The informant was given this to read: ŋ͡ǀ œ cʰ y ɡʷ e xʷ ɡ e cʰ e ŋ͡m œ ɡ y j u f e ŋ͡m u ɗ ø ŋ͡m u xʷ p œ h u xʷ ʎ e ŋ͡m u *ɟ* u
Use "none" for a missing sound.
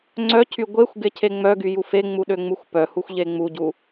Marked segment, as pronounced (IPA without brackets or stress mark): ɟ